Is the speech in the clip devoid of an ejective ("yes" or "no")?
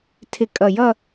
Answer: no